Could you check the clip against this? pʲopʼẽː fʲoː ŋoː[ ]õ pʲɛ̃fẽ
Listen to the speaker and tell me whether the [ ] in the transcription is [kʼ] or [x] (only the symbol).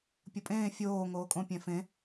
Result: kʼ